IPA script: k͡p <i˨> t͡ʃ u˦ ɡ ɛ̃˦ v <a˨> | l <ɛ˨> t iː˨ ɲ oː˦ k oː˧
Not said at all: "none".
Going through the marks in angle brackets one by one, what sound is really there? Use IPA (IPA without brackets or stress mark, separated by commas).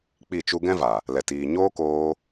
i˦˨, a˨, ɛ˨